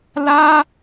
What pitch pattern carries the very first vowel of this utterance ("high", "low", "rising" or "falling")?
high